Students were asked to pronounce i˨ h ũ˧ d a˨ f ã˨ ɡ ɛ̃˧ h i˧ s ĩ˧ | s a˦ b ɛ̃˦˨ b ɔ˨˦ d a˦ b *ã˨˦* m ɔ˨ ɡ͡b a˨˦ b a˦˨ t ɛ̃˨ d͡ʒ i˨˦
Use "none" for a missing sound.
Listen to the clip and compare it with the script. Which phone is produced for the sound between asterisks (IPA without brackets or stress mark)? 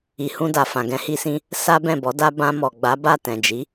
ã˧